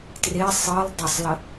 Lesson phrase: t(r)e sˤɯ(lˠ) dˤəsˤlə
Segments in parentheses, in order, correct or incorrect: correct, correct

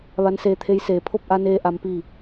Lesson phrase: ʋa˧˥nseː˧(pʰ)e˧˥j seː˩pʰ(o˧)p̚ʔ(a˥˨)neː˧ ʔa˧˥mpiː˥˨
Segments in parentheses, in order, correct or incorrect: incorrect: t̪ʰ, incorrect: o˥˨, incorrect: a˧

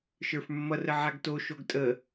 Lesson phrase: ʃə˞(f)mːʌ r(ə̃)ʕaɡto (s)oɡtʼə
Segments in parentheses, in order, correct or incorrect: correct, incorrect: ə, incorrect: ʃ

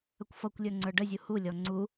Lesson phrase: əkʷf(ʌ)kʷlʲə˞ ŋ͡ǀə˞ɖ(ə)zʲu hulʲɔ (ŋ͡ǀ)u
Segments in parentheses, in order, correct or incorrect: correct, correct, correct

